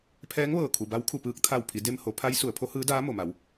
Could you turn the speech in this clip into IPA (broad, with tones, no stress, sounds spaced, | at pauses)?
pʰ ɛː˧˥ ŋ ʋ ɤː˧˩ kʰ u˩ b a˧˥ w kʰ u˧˩ p ɯː˧ k̚ t̪ʰ a˧˩ w pʰ i˩˧ d e˧ m h o˩˧ pʰ a˧˥ j s u˩˧ ə̯ pʰ o˧˥ h ɯː˧˥ d aː˧˥ m o˩ m a˩˧ w